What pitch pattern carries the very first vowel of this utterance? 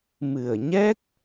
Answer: low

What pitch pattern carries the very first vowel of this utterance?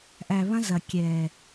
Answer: low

